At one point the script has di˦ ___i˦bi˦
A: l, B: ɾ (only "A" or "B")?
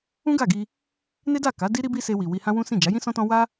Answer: B